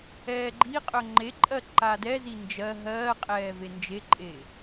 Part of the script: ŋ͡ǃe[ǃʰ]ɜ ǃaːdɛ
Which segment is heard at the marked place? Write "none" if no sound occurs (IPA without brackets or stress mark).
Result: ǃʼ